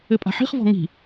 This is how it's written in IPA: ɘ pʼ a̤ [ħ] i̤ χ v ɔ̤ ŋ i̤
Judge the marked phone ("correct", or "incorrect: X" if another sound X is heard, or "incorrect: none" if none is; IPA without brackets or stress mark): correct